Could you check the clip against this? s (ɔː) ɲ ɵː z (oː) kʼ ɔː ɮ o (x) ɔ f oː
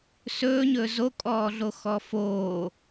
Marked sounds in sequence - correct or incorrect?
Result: incorrect: ɵː, incorrect: o, correct

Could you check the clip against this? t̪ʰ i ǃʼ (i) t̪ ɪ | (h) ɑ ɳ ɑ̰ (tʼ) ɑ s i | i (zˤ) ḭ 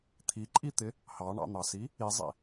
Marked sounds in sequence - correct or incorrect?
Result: correct, correct, incorrect: n̪, correct

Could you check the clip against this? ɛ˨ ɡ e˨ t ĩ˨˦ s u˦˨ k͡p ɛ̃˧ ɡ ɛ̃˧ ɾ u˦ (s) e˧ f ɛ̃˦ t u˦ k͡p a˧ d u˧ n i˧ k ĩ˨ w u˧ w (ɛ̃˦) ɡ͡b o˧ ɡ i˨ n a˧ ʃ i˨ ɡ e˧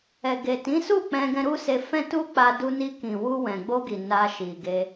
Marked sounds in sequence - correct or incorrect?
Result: correct, incorrect: ɛ̃˨

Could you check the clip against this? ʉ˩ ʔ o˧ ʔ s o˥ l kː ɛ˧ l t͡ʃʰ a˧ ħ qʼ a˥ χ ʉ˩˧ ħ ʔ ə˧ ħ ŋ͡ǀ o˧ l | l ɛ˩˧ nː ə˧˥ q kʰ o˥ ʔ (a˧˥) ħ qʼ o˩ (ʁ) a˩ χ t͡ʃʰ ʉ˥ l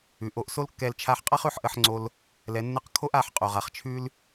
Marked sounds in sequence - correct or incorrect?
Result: incorrect: a˩˧, correct

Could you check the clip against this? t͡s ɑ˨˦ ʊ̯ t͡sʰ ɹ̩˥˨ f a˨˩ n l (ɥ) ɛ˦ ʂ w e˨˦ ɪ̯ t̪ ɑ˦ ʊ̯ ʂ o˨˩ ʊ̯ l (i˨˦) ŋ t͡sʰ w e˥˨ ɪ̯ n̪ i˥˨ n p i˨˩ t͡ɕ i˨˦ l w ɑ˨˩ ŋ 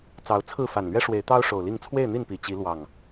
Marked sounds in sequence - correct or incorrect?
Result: correct, incorrect: i˥˨

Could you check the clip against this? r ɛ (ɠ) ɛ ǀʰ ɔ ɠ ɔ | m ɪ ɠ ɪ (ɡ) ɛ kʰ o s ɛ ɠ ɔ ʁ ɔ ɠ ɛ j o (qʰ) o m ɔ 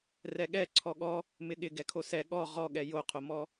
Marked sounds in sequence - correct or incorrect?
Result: correct, correct, correct

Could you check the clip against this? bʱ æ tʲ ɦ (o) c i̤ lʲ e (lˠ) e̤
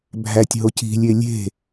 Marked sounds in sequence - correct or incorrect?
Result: correct, incorrect: lʲ

